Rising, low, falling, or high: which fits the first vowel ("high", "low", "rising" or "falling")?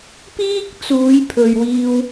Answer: high